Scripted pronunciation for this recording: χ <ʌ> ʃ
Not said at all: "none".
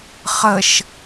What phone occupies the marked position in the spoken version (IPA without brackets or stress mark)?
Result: ə